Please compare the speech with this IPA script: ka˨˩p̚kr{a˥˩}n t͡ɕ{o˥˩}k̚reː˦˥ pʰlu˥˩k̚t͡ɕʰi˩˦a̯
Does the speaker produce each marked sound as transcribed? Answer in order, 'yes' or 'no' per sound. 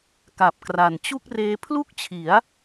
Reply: no, no

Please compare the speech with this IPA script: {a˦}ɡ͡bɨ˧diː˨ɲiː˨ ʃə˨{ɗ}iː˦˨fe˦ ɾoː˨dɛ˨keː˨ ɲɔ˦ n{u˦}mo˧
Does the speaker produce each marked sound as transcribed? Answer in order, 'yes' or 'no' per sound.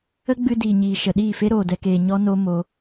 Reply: no, yes, no

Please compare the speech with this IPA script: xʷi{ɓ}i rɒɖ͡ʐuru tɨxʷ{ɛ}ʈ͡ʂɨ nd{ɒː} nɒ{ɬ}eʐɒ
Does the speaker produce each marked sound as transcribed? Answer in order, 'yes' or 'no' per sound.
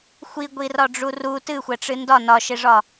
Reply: no, yes, no, no

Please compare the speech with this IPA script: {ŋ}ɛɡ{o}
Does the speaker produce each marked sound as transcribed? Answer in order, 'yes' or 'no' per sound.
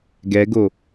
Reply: no, yes

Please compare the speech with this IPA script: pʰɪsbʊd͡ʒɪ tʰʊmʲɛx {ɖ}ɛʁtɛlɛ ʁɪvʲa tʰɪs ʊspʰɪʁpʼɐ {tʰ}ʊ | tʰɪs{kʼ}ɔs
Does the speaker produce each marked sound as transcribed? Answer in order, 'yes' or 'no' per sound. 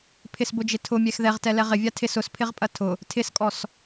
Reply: no, yes, yes

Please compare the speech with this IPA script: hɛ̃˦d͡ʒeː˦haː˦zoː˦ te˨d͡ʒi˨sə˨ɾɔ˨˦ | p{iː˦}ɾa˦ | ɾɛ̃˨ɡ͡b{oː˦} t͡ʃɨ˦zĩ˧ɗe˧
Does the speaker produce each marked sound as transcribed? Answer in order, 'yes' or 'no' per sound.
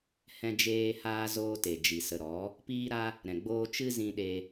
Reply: yes, yes

